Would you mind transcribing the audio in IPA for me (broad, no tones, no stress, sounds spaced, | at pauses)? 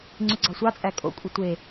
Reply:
ŋ͡ǀ y ɡ͡ǀ ɑ sʷ ɑ t͡sʼ æ kʼ o̰ kʷʼ e tʷ e